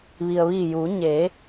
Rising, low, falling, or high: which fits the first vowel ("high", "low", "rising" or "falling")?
low